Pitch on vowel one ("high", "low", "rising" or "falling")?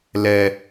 low